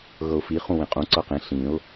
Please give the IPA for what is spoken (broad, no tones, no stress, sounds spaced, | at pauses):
ɣ ɤ ʊ̯ f i χ ũ w ĩ qʼ ũ ǀ ɤ q ĩ ɬ ĩ ʊ̯